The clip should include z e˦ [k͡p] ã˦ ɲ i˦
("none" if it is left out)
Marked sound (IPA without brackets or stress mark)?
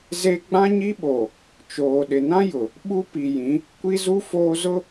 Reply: ɡ͡b